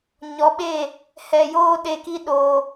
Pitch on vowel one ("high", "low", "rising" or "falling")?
rising